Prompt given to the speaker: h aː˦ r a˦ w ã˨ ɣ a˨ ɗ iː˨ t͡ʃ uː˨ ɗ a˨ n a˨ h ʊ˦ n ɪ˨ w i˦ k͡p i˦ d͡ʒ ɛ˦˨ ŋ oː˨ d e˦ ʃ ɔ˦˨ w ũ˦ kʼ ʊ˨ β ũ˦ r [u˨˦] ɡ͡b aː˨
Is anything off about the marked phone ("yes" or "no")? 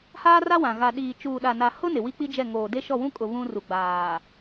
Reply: yes